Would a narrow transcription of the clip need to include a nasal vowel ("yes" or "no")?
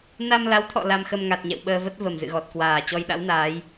no